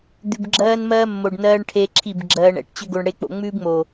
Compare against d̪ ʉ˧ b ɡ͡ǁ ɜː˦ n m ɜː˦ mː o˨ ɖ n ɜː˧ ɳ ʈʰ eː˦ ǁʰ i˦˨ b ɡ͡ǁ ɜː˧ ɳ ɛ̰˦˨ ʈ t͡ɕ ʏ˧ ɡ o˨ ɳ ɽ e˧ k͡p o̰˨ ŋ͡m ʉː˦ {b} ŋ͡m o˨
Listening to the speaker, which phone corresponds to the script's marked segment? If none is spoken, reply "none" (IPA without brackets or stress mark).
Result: b